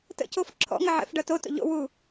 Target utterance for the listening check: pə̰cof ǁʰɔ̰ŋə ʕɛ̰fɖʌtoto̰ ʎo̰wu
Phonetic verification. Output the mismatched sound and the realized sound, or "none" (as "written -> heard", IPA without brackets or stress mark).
p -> t